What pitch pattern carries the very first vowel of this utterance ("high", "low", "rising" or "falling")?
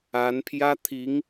rising